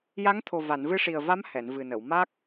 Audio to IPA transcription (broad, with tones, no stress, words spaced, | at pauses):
ja˧˥ŋt̪ʰo˨˩ va˨˩˨nvɨ˧ʂi˨˩ə̯va˧˥m hɛ˨˩˨nvɨ˨˩nə˨˩˨wma˦˥k̚